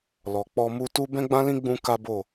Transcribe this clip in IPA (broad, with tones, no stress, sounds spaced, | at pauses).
l ɔ˨ k͡p ɔ˧ m u˧ t u˦ b ɛ̃˦ ɡ͡b ã˦ l ĩ˦ ɡ͡b ũ˦ k a˦ b o˦˨